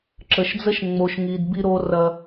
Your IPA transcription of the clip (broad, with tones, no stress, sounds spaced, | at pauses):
ǁ ə˨ ʃ d͡z ə˦ ʃ ŋ͡m o˨ ʃ ŋ i˨ d b i˦ ɾ o˦ r ɐ˦